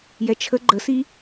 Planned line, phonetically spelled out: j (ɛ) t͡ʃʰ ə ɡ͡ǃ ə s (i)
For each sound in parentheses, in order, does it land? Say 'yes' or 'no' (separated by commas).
yes, yes